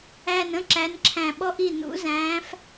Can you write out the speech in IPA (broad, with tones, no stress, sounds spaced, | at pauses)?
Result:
æ˧˩ n ə̃˥ ǁ æ˨˥ n ǁʰ æ̃˧˩ ɓ ɔ˥ ʔ i˥˩ n ṵ˨˥ z æ̃ː˨˥ f